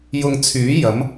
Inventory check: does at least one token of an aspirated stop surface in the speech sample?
yes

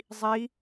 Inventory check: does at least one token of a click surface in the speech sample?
no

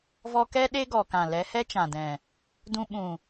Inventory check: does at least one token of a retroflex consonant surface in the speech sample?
no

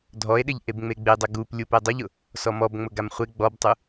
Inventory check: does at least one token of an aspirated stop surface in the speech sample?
no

